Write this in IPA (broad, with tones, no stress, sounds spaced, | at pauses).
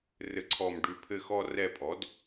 r ɘ˦ ǀʰ ɔ˦˨ m ɖ ʉ˦˨ pʰ ɘ˦˨ x ɔ˦ r ɛ˦˨ pʼ ɔ˩˥ d